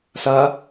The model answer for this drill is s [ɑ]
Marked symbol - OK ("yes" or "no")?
no